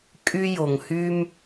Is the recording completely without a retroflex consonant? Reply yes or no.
yes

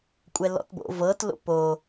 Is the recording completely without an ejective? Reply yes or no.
no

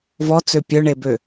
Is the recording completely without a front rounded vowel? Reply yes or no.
no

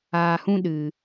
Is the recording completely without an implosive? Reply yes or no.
no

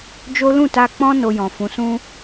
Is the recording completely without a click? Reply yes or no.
yes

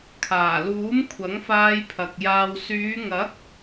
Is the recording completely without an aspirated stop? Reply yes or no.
no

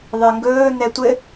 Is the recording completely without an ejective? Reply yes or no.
yes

